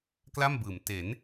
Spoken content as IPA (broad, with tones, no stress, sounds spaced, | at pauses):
k l a˥˩ m b ɯː˩˦ m t e˩˦ n